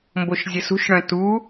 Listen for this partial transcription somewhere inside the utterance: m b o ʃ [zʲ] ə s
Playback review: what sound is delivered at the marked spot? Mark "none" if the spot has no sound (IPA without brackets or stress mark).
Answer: zʲ